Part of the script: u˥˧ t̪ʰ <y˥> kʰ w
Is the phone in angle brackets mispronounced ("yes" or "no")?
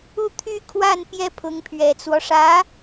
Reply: yes